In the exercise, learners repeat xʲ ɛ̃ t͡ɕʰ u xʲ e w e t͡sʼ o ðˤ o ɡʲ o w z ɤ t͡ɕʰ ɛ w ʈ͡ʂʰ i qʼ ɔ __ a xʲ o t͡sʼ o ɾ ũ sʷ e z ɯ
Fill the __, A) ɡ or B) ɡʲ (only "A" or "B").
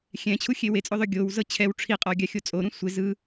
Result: B